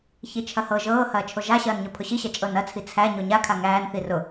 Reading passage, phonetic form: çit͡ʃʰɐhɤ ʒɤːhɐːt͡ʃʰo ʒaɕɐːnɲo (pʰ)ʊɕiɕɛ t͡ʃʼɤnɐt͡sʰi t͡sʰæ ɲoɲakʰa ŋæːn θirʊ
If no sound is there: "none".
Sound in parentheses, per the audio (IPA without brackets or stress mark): pʰ